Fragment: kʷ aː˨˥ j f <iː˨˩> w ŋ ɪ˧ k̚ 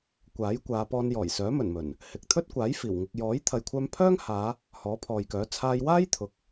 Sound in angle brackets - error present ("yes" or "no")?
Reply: no